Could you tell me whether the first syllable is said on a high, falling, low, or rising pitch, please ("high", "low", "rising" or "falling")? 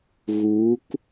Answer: rising